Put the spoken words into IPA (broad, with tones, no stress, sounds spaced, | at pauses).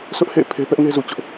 s ʊ˦ ʔ h ḛ˦˨ ɪ̯ pʰ e˦ p ɛ˦ ʔ ŋ e˦ z u˨ t͡ɕ ʊ˦ ʔ